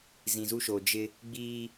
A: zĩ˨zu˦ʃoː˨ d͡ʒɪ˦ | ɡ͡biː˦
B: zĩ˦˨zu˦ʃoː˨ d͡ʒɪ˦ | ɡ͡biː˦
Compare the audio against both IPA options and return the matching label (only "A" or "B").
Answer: A